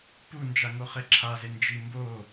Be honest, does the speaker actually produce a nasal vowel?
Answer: no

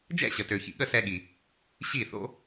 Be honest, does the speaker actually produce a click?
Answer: no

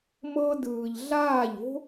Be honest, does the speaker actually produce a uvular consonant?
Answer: no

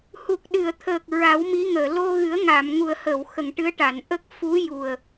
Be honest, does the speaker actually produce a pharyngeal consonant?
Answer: no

